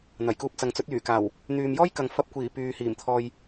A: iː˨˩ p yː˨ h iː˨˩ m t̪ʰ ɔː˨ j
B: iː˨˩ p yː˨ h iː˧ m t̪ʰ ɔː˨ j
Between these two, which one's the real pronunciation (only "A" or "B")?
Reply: A